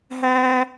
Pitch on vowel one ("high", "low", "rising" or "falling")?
high